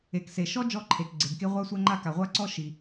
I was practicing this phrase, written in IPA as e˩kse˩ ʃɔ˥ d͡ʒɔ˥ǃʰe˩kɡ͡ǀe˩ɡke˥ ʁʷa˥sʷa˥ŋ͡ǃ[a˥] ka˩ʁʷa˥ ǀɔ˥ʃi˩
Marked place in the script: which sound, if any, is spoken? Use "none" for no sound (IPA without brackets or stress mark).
a˥